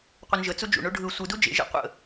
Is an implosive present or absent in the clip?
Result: absent